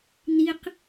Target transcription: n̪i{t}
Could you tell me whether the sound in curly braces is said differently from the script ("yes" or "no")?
yes